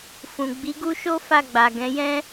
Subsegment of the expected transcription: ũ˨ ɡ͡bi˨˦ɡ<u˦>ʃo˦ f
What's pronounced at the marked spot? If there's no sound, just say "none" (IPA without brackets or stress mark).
u˦